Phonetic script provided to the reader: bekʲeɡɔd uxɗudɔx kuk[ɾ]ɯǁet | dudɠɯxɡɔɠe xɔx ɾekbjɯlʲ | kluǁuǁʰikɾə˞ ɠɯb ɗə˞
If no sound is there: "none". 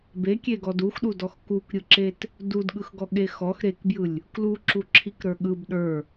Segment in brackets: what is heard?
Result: ɾʲ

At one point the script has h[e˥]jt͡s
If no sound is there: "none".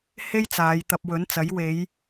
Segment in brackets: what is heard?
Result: e˥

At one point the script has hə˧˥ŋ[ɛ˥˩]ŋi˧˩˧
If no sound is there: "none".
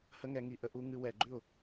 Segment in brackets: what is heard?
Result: ɛ˩˧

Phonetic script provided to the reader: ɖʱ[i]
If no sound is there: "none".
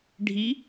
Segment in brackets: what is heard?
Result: i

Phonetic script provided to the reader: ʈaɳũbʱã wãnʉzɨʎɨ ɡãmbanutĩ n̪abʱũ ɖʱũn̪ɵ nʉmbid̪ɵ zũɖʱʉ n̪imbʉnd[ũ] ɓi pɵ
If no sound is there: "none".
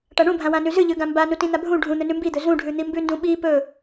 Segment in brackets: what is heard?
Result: ũ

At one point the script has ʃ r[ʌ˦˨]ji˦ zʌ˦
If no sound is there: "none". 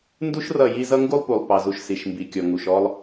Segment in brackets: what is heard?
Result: ʌ˦˨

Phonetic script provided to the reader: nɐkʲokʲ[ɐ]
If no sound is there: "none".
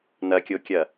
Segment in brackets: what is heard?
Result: ɐ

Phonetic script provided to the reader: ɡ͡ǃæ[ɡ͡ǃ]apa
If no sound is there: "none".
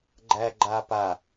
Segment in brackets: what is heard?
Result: ɡ͡ǃ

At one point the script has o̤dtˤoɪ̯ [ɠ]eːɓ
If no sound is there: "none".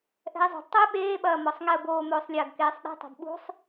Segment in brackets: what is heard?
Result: ɓ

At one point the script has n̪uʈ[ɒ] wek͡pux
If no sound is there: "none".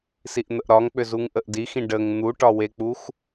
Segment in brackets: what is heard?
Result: ɒ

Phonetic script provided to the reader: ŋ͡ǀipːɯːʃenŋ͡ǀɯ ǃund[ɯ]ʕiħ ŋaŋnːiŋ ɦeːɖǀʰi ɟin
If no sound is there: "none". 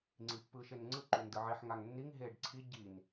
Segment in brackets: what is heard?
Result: ɯ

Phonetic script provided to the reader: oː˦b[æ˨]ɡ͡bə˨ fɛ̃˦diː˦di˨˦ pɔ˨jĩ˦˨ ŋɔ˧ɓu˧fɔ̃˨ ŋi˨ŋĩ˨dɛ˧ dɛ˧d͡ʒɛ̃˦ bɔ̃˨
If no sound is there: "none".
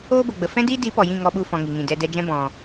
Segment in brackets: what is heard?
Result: ə˨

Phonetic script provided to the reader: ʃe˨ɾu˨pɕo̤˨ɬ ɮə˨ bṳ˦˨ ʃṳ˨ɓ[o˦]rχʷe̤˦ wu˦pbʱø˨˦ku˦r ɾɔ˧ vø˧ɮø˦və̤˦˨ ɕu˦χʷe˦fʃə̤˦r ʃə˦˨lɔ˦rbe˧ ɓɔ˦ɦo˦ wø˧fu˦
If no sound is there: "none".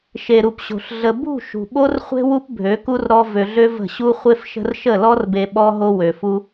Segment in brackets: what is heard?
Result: o˦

